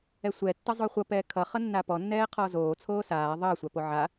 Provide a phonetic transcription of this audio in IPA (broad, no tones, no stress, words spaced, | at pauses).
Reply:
ɛsʷɛ tːʌzˤoχʷʌ pɛːkʰʌ χʌnːapɔ nːɛːqʰɔːzoː t͡sʰoːsaː ðˤʌː sʷapoʕa